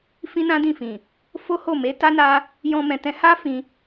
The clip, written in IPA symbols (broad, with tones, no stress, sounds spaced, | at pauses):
f ĩ˦ n ã˦ d ĩ˦˨ f ĩ˨ | f o˦ h o˦˨ m e˨˦ t a˦ n a˧ | j ɔ̃˦ m ɛ̃˧ t ɛ̃˦ h a˦ f ĩ˧